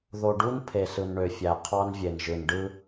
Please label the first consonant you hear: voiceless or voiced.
voiced